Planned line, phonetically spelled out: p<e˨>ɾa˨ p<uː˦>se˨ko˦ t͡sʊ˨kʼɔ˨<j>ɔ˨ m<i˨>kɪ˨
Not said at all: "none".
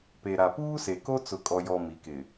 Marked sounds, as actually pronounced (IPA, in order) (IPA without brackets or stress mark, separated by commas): e˨, uː˦, j, i˨